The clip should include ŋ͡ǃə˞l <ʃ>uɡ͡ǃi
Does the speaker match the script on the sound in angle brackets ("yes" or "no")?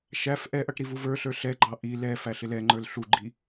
no